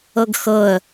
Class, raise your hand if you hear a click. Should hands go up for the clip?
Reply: no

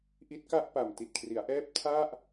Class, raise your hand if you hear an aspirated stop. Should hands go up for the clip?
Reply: yes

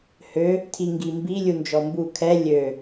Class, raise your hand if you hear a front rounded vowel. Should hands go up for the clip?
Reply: yes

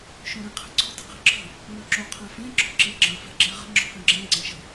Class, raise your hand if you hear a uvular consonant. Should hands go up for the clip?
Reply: yes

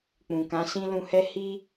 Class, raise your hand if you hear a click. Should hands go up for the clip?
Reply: no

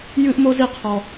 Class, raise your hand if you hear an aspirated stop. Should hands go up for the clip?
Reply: yes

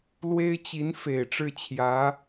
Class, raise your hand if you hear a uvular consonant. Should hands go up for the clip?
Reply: no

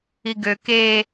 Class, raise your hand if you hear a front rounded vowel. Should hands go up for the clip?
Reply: yes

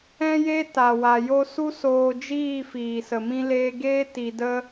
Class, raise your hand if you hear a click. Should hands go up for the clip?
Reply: no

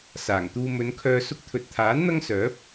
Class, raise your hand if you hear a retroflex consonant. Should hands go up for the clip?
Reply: no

